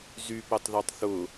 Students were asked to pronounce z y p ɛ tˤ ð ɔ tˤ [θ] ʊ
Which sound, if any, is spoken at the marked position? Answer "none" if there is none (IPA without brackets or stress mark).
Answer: θ